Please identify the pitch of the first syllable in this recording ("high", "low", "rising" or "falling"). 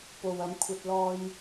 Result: low